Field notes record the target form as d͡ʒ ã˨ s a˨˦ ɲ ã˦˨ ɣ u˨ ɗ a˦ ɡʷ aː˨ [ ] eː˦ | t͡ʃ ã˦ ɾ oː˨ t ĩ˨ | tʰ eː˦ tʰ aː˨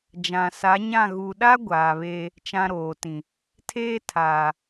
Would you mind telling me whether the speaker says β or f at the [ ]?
β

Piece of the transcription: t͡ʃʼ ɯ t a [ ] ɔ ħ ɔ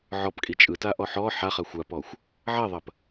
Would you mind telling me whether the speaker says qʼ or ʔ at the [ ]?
ʔ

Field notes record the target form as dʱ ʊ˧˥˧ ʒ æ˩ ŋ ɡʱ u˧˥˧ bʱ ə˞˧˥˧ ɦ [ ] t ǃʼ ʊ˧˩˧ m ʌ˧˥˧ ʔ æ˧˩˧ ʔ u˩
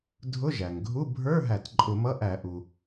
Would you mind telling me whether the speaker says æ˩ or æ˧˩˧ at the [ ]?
æ˧˩˧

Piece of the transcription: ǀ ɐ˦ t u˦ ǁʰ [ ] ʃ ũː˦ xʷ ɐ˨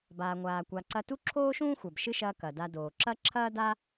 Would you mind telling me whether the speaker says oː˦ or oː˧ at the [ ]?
oː˦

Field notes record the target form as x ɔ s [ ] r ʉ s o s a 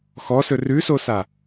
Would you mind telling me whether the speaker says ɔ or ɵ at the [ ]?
ɵ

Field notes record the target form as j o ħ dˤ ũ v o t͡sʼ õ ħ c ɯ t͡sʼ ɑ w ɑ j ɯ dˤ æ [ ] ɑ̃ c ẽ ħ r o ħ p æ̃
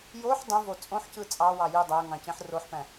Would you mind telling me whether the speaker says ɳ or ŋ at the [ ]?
ŋ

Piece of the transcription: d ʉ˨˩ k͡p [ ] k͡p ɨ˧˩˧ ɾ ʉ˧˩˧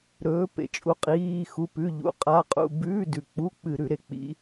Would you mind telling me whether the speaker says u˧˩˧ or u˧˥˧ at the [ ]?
u˧˥˧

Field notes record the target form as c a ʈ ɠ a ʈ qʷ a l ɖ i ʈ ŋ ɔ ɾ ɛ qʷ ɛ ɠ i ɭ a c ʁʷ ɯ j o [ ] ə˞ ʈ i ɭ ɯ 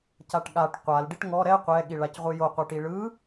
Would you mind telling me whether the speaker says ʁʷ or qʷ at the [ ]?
qʷ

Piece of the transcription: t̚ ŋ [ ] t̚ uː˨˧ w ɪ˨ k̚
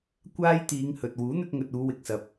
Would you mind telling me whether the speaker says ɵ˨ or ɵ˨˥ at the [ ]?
ɵ˨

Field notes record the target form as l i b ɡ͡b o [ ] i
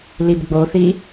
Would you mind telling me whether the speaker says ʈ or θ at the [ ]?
θ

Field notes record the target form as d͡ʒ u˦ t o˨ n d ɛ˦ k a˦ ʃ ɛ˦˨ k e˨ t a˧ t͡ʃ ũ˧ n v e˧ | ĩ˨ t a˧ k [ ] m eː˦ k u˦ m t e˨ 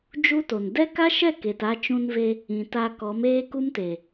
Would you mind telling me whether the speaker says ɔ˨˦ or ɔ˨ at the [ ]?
ɔ˨˦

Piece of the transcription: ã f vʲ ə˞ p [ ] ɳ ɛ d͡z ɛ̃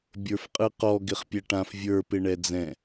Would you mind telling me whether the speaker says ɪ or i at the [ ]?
ɪ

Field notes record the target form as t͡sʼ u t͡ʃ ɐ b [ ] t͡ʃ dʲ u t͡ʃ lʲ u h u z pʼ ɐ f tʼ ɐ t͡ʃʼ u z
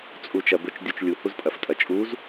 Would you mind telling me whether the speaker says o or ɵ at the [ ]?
ɵ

